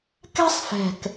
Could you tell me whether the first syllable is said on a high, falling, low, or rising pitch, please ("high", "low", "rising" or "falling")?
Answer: high